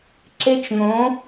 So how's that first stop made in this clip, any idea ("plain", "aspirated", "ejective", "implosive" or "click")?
click